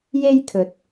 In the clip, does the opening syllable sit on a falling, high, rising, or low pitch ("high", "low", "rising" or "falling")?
high